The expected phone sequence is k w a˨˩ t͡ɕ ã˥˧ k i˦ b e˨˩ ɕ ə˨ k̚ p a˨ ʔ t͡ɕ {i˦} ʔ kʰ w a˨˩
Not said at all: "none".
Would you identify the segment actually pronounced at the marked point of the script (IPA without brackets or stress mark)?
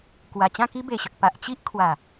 i˦